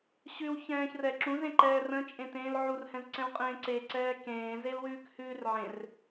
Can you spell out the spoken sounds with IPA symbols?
ɕ ʉ w ç ɛ̃ː ç r ɛ ǁ ũ z ẽ ǃ ɛː r ə̃ t͡ʃʼ ẽ t ẽː l ʕ u r h ɛ̃ z ǀ ɛ̃ w qʼ ẽː ǀ e ǀ ɛː k ẽː z e l w ʉː k h ʉː r ʕ ẽ r

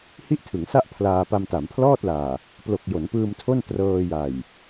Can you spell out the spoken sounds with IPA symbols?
h i˥˩ ʔ tʰ ɯ˩˦ ŋ s a˥˩ ʔ pʰ l aː˧ p a˧ m t a˩˦ m pʰ l ɔː˥˩ t̚ l aː˨˩ | p l o˨˩ k̚ j o˩˦ n p ɯː˧ m tʰ o˥˩ n t r ɤː˧ j a˨˩ j

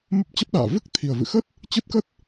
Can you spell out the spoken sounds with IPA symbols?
m ə˦˥ p̚ t͡ɕ ə˦˥ p̚ ɗ a̰ː˧˨ v ɨ˦˥ k̚ t̪ʰ i˨˩ ə̯ v ɨ̰˧˨ x ə˦˥ t̚ | t͡ɕ ɨ˦˥ t̚ k ə˦˥ t̚

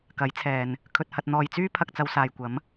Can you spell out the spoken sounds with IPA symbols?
k ɐ˨˥ j t͡sʰ ɛː˨ n | kʰ ɵ˨ t̚ h ɐ˨ t̚ n̪ ɔː˨ j t͡s yː˥ pʰ ɐ˧ k̚ t͡s ɐ˧ w s aː˨ j kʷ ɐ˨˥ m

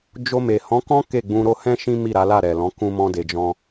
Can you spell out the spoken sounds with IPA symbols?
d͡ʒ o˧ m e˨ h ɔ̃˨˦ k ɔ̃˦ k e˦˨ ɡ͡b ũ˧ ɾ o˦ h ɛ̃˦ ʃ ĩ˦ m i˦˨ ɾ a˨˦ l a˦˨ ɾ ɛ˨ l ɔ̃˨˦ k ũ˦ m ɔ̃˦ d e˧ d͡ʒ ɔ̃˧

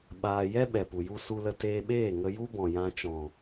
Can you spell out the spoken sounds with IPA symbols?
ɓ aː˧ j ɛ˦ ɓ ɛ˨ p u˨ j u˦ s u˧ l ə˧ t eː˧ ɓ eː˦˨ ŋ ə˧ j u˦ b ɔ̃˨ j ã˧ t͡ʃ ɔ̃˨

